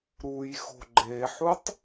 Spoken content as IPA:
ɾ u j x o̤ ɡ͡ǃ e ħ u tˤ

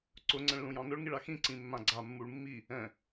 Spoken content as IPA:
ǀ ʊ ŋ͡ǀ ɛ̃ ɭ l ũ j ɑ̃ n ʊ ɭ ŋ i ɭ a x ĩ ǀ ĩ mː ã ɡ͡ǀ a mː u ɭ mː i | ɛ̃

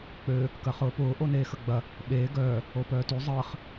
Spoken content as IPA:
k͡p ø | k ɐ χ ʊː p ʊː ʔ o n eː x ə ɡ͡b ɐ | ɓ eː ɡ œː | o p œː t y zˤ əː χ

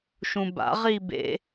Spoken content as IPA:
ʃ ũ b a̰ ʁ i b ḛ

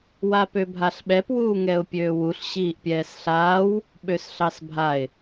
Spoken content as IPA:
w a p ø bʱ a ɬ ɓ ɛ p w uː ŋ ɛ ʊ̯ pʲ øː w u ɬ ɕ iː ʔ pʲ ɛː s ɬ aː w | ɓ ø s ɬ ɑ s bʱ a ɪ̯

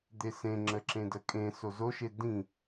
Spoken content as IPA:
d̪ e s ẽ ŋ͡ǁ ə ǁ ẽ d ə kʼ ẽ s o z o ʃ e d ĩ

